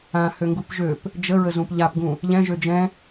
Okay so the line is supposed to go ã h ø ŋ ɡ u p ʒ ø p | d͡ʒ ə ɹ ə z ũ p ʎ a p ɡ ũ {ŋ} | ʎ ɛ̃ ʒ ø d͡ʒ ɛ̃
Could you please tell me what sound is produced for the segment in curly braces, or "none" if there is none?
none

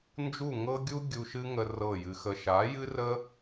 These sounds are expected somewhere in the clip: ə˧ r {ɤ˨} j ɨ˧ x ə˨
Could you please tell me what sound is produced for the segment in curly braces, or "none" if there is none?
ɤ˦˨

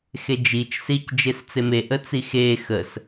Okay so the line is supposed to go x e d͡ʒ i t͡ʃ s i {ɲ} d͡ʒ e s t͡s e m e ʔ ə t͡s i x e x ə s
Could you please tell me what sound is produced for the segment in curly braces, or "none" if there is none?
c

